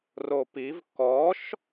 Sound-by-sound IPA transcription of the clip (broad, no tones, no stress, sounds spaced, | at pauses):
r o p i v k ɔ ʃ